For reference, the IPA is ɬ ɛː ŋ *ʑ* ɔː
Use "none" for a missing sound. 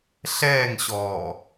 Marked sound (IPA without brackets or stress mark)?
ɕ